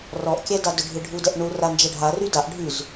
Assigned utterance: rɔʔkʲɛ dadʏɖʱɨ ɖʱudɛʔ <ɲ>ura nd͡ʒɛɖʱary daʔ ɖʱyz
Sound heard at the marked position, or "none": ɳ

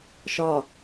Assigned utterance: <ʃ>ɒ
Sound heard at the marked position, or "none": ʃ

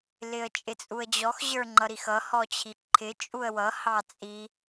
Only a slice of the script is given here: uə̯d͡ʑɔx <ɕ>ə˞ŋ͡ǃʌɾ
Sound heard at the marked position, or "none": ʑ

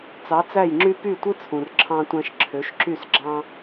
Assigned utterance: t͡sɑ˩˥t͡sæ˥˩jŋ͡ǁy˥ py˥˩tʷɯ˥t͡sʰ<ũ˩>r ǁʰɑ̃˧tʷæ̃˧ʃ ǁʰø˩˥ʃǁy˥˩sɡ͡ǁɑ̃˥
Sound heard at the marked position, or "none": ũ˩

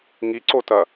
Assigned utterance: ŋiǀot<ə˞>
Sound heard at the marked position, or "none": ɐ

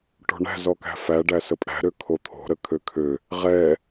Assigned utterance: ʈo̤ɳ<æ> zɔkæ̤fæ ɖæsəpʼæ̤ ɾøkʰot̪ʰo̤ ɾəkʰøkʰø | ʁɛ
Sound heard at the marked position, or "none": æ̤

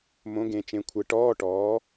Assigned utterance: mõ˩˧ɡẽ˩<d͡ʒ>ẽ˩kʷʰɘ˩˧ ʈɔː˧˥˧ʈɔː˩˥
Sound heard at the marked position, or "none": t͡ʃ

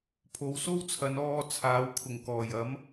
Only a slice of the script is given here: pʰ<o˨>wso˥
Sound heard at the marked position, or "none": o˨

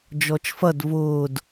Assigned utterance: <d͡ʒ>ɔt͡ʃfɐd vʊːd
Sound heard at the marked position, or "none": d͡ʒ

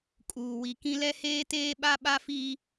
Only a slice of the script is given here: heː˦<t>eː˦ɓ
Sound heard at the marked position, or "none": t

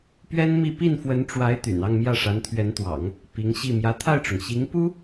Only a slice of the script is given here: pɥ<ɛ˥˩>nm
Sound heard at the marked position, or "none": ɛ˥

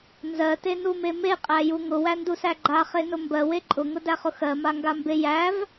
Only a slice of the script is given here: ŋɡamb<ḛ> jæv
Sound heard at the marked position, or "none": e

